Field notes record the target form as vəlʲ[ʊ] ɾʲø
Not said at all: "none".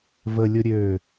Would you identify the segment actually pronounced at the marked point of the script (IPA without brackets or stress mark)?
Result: ʊ